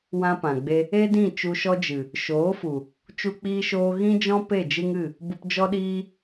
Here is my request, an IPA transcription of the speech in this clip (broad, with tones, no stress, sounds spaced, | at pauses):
w ã˦ p ã˨ ɡ͡b e˦ | e˦ d ĩ˦˨ t͡ʃ u˧ ʃ ɔ˦ d͡ʒ ɨ˨ | ʃ oː˨˦ f u˨ | t͡ʃ u˧ k͡p iː˧ ʃ oː˧ ɣ ĩ˦ d͡ʒ ɔ̃˦ p e˦˨ d͡ʒ ɨ˦ ŋ ɨ˦˨ | b u˧ p d͡ʒ ɔ˦ ɗ iː˦